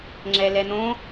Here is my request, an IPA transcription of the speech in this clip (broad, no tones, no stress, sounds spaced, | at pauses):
ŋ͡ǁ ɛ l ɛ n̪ õ